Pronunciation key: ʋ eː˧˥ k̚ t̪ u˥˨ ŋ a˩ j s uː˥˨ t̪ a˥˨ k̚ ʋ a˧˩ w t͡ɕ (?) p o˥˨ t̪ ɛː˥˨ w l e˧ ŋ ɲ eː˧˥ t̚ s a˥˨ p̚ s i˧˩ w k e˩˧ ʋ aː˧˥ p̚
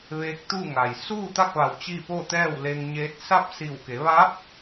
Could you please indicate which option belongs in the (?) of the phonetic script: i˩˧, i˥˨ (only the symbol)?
i˥˨